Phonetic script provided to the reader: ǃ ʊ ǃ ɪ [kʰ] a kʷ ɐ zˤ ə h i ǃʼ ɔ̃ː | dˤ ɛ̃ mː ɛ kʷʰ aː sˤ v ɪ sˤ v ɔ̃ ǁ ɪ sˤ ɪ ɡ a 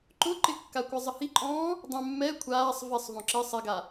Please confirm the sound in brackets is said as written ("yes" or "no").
no